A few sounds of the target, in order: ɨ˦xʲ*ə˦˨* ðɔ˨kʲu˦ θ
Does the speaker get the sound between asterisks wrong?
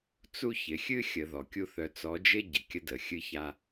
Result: yes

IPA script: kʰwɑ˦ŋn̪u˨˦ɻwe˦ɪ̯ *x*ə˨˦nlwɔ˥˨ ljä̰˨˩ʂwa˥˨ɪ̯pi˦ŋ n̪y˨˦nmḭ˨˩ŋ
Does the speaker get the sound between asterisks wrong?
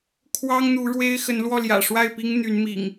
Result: no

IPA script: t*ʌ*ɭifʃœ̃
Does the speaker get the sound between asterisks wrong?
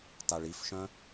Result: yes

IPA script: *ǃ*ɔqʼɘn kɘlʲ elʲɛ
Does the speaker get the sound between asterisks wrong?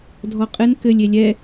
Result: yes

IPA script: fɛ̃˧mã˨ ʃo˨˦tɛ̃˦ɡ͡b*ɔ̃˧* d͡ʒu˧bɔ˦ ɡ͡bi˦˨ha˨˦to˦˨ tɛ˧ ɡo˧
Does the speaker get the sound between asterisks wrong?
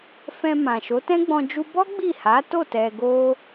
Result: no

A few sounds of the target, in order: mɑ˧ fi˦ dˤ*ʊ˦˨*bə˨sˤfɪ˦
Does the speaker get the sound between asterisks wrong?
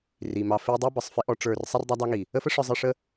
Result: yes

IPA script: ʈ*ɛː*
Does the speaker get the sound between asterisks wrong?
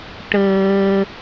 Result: yes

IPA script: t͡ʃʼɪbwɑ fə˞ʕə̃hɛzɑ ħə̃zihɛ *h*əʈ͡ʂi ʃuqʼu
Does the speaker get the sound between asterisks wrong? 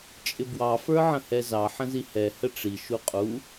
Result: no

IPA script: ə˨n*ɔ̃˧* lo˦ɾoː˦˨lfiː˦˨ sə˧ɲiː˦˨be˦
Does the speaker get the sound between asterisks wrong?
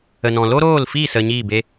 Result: yes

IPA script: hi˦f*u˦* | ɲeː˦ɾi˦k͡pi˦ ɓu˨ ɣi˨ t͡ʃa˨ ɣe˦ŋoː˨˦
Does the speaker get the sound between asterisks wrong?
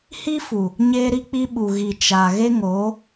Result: yes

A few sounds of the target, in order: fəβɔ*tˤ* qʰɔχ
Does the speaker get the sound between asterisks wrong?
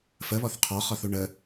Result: yes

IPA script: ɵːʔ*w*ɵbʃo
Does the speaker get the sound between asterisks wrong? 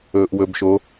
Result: no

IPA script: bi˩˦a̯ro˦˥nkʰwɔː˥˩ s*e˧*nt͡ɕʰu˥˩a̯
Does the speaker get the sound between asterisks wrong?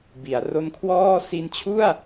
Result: yes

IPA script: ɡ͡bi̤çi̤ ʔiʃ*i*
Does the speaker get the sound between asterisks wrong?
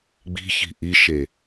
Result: yes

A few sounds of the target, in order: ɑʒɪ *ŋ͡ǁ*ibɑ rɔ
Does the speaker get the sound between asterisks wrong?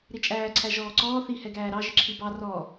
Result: yes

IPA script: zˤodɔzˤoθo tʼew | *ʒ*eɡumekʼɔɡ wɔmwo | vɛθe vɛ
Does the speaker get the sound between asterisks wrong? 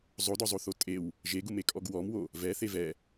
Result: no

